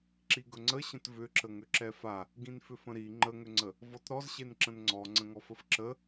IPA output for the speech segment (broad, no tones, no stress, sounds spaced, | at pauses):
ǁ i ɡ ɵ ŋ͡ǀ ə ɕ ə̃ t v ʏ ǁ ə ŋ ʏ ǁ ɛ f a | ɡ ĩ n f ʏ f ə̃ ɾ i ŋ͡ǃ ə ŋ ʏ ŋ͡ǀ ə | v ɔ t ɾ ɔ z ɕ e n ǁ ə̃ n ŋ͡ǀ ɔ ŋ͡ǀ ə̃ ŋ ɔ f ə f ǁ ə